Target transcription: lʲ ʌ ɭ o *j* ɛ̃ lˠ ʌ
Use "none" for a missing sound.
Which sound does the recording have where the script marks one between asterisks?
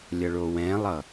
w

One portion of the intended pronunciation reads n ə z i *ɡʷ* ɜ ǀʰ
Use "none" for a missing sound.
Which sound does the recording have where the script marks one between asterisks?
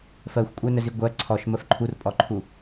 ɡʷ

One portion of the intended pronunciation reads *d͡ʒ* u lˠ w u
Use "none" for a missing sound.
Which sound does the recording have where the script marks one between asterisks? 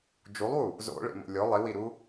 d͡ʒ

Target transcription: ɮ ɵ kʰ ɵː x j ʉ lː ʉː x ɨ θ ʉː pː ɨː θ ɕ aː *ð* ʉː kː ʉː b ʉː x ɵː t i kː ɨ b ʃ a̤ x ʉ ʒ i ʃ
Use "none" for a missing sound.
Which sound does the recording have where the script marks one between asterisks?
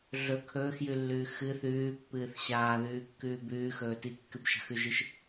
ð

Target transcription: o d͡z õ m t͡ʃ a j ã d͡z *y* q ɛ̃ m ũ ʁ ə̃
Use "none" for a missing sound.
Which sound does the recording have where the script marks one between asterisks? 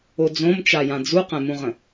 u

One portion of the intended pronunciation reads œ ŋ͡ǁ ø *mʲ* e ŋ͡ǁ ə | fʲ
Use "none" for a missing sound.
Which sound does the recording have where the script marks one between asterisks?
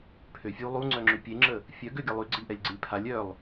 pʲ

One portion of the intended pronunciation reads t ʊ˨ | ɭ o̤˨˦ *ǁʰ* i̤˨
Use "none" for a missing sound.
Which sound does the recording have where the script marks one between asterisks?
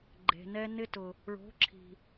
ǁʰ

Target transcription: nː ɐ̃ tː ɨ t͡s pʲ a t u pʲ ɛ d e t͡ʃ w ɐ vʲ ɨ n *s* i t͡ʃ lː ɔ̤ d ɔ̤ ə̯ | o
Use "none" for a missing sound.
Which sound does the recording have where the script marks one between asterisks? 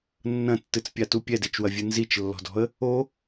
z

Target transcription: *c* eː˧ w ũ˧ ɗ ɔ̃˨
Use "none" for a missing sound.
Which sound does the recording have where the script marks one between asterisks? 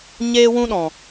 ɲ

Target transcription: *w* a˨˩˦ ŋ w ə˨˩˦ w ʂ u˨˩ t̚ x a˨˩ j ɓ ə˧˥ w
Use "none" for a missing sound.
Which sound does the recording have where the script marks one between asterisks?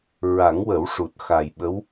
ɹ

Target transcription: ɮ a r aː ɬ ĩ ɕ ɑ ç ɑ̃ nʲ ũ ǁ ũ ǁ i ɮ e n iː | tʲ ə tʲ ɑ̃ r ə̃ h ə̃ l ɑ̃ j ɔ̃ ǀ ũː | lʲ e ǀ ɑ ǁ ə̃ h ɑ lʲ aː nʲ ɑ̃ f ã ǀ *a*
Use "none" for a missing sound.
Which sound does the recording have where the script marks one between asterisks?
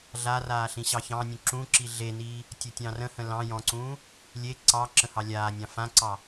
ɑ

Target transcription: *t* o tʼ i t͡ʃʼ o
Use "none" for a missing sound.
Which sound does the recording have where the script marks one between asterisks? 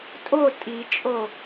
tʼ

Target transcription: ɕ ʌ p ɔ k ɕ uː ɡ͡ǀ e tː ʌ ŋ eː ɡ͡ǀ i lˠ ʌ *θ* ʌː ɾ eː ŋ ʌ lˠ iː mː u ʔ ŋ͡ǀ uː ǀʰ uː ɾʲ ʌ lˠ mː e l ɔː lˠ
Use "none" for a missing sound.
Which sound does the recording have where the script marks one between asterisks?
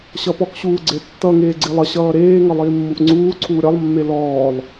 ɕ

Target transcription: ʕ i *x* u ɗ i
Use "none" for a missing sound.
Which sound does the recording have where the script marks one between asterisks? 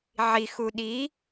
x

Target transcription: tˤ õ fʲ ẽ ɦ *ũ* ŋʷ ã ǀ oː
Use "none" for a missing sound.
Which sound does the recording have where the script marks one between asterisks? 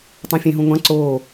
ũ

